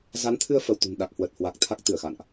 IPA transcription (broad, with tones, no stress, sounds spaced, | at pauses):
z a˨˦ n t̪ʰ ɨ˧ ə̯ f ə˧˩ w t̪ ṳ˨˩ n ɗ a˨˩ k̚ h w ə˨˩ t̚ h w a˨˩ k̚ t̪ʰ a˦˥ k̚ t̪ ɨ˧˩ ə̯ x a̰˧˨ n ʔ